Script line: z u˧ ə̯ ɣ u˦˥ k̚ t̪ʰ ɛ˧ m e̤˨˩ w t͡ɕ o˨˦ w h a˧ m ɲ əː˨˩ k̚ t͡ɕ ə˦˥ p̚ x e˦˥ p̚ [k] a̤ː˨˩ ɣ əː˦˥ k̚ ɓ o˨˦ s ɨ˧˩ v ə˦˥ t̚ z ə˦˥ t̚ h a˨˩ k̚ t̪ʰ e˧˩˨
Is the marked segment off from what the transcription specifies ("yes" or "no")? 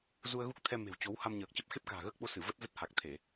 no